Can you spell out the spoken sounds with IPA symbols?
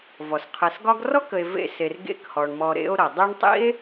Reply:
v ɔ˩ s qʰ ɛ˨ s ɡ ɒ˥ ɡ r ɔ˥ k ə˨ e̯ v ḛ˦ s e˨ r ɡ ḛ˦ k h ɔ˩ ɳ m ɔ˨ ɾ ḛ˦ o̯ ɾ ʌ˩ dˤ ɛ˦ ɳ tˤ ḭ˥ e̯

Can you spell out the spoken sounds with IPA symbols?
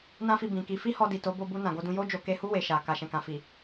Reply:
n ã˦ f i˧ b ĩ˨ k i˧ f i˦ h ɔ˧ d i˨ t o˨˦ b o˧ b u˧ n ã˨ ɡ o˧ d ũ˧ j o˦ d͡ʒ o˧ k e˧ h u˦ w e˧ ʃ a˨ k a˨ ʃ ɛ̃˨ k ã˨ f i˨

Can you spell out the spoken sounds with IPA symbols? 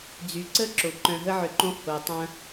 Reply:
d͡z y˩ ǀ ə˦ ǁ o˩ ǃ œ̃˨ ɦ ə˦ ʕ ʏ˨ ǃ õ˦ h o˨ tˤ ɐ̃˦

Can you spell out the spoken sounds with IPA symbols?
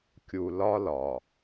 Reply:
kʲ u˨ l ɒ˦ l ɒ˨

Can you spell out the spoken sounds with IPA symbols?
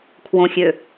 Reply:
kʰ w õ xʲ ø

